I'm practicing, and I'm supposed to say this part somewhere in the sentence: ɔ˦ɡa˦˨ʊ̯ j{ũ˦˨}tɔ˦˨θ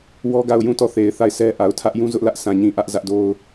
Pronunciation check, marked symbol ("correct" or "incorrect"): correct